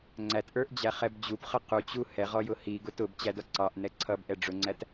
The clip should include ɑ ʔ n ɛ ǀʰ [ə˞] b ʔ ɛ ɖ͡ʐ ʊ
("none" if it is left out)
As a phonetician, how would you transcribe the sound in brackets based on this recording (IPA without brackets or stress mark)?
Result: ʌ